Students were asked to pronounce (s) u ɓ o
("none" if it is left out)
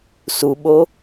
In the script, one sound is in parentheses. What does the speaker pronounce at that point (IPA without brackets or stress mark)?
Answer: s